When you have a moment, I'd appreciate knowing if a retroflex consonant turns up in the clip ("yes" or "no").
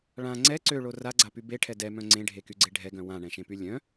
yes